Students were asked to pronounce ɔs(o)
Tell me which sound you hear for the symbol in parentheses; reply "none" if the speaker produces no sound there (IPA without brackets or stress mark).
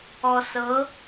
ɤ